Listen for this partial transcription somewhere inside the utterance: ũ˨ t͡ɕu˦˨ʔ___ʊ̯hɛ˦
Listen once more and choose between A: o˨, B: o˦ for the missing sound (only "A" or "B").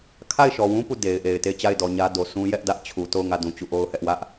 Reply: B